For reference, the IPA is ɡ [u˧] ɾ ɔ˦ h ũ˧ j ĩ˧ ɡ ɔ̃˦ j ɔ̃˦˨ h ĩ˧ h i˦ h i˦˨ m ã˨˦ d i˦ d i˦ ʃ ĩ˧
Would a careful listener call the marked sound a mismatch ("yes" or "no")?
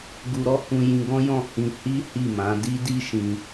no